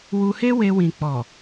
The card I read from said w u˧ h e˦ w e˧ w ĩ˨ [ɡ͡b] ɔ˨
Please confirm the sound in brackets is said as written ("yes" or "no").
no